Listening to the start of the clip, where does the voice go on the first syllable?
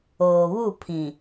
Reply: low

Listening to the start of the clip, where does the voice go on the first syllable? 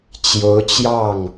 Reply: rising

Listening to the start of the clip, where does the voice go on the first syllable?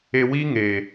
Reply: low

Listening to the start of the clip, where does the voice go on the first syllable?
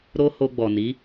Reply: high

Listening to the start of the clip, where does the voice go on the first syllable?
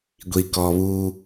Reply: low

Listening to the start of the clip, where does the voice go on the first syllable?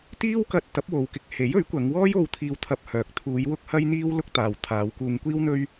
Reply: high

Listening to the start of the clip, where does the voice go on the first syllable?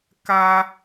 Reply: high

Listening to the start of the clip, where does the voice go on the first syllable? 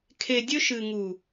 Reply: low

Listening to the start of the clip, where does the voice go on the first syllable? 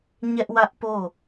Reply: high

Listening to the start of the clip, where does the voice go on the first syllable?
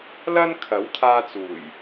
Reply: high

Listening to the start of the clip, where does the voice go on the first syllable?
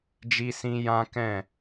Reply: high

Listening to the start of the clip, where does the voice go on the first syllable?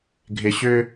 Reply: low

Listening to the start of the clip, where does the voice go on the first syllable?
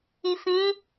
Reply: low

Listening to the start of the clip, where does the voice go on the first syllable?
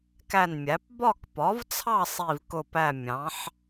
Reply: falling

